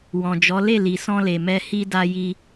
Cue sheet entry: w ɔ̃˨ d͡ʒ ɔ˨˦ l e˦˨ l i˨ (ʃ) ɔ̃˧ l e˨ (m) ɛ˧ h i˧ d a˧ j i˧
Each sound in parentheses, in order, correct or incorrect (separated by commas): incorrect, correct